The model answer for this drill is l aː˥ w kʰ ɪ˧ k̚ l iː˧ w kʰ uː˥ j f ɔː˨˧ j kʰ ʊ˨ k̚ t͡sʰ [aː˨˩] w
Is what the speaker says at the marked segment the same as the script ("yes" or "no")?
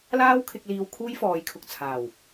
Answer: yes